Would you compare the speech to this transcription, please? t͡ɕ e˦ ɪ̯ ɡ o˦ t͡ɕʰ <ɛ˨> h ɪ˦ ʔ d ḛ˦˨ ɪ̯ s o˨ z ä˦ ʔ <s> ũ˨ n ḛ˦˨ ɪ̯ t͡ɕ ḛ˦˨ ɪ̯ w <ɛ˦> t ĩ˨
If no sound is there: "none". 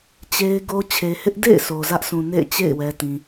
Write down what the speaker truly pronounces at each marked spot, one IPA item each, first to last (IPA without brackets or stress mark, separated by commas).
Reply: e˨, s, ɛ˨